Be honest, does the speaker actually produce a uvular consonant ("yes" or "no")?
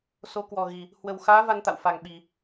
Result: no